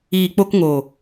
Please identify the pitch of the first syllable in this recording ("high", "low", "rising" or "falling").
low